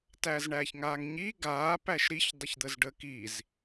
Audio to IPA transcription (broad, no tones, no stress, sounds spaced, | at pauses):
t æː z ɳ æː ç ŋ aː ŋ ɲ iː ɡ aː p æ ʃ ɾ i ç dˤ ə ç d̪ ə z ɖ ə k i z